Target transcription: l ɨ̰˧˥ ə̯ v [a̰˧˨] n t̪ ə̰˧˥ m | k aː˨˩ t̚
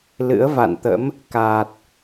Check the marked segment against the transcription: correct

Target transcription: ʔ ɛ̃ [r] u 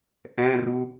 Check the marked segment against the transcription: correct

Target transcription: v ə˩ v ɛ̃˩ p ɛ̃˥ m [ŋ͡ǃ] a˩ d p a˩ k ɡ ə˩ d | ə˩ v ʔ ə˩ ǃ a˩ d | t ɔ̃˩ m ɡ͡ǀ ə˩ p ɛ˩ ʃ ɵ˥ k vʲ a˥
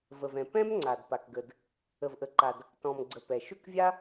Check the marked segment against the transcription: incorrect: ŋ͡ǀ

